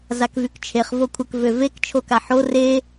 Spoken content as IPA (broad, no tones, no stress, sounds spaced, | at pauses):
z a k v y k t͡ʃʰ e χ v o kʷʰ ə k v ø v e k t͡ʃʰ o k a ħ o r e